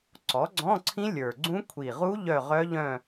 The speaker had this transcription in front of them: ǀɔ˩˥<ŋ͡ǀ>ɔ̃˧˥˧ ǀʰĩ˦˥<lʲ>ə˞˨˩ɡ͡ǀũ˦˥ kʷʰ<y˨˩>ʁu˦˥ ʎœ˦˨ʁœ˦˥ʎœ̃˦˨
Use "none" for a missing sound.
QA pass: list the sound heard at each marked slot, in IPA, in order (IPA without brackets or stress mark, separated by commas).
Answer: ɡ͡ǀ, lʲ, i˨˩